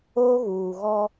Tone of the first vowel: high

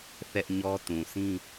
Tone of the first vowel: high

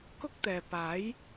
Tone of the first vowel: high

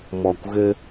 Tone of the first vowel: low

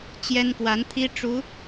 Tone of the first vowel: high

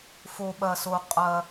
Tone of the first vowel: low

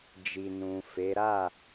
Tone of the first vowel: low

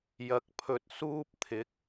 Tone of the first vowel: low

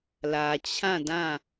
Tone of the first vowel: low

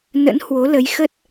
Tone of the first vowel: rising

